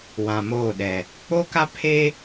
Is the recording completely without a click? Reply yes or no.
yes